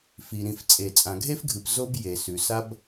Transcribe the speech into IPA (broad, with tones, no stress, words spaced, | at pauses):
fi˩ ɾĩ˩ft͡sʼe˩ t͡sʼã˩ɡʱe˥fɡʱɨ˩p zo˥b je˩sʉ˩ sa˥b